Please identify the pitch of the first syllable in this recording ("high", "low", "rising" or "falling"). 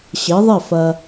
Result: rising